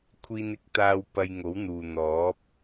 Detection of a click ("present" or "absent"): absent